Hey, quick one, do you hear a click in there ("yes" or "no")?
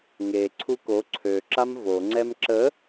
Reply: yes